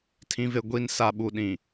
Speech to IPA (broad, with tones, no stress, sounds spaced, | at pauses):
tʰ ĩ˨ v e˨ ɡʷ i˨ n s a˨ ɓ u˨ ɗ ĩ˨